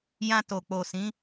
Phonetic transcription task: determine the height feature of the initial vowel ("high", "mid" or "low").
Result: low